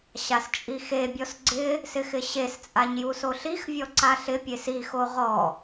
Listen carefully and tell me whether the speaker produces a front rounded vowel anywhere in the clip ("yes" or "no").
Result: no